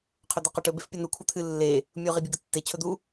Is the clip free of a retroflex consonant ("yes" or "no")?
no